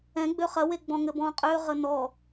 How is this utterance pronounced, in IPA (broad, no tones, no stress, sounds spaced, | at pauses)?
ɛ̃ ɡ͡b ø χ ɐ w e ɡ͡b ɔ̃ ŋ ɘ b ɔ̃ qʼ ø ʁ ə n ɔ